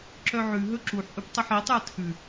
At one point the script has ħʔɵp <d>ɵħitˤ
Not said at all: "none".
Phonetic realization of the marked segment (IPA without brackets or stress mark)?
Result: tˤ